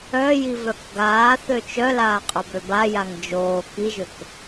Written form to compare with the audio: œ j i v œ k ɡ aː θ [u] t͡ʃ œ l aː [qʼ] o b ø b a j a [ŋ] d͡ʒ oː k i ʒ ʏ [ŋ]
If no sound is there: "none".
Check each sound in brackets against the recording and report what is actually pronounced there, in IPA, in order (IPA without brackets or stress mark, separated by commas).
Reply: ø, qʼ, ŋ, k